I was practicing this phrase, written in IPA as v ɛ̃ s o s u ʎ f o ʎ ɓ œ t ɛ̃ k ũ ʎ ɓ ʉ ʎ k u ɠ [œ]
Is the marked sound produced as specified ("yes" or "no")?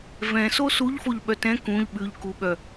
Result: yes